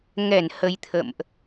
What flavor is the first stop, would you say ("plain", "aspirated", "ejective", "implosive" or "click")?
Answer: aspirated